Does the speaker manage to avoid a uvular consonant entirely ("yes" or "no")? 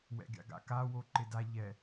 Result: yes